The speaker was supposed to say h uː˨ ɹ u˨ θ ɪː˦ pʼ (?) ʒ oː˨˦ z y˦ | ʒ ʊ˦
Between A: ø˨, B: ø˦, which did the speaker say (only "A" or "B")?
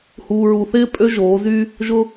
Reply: B